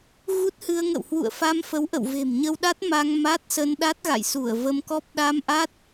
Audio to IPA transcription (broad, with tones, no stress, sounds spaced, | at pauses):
ɣ u˦˥ t̚ h ɨ˧ ə̯ ŋ ə̰˧˨ w h w ṵ˧˨ ə̯ f a˧ m f ə˨˦ w ʔ ə̰˧˨ w v e̤˨˩ m ɲ ə˧ w ɗ a˦˥ t̚ m a˧ ŋ m a˦˥ t̚ s ə˧ n ɗ a˦˥ t̚ ɣ a̰˧˨ j s u˧˩ ə̯ v ə˧ m k ɔ˦˥ p̚ ɗ a˧ m ʔ a˦˥ t̚